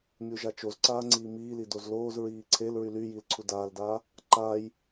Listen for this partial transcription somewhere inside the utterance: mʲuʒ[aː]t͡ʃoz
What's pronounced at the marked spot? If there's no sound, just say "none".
a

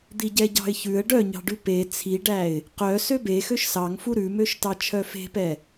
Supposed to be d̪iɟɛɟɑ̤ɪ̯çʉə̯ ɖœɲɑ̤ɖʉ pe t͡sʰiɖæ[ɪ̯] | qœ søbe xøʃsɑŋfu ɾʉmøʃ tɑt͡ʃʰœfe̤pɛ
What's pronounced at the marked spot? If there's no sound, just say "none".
ɪ̯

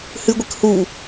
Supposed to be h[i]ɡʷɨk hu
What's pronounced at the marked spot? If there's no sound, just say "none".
ɨ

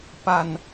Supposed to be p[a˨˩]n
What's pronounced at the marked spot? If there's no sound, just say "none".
a˨˩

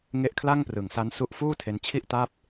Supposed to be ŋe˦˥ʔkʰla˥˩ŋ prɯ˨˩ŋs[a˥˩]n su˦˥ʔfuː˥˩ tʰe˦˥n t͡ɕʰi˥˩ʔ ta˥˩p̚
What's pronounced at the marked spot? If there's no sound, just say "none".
a˦˥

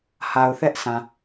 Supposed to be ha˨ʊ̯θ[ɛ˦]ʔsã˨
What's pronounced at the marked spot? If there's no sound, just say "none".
ɛ˦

